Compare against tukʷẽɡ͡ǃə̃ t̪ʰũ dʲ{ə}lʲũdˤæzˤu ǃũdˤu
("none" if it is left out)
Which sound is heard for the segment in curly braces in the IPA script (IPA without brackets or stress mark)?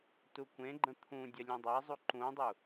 ə